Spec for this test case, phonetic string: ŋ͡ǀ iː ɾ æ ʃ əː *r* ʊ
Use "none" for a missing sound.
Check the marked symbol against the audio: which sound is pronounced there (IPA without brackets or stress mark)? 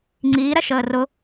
r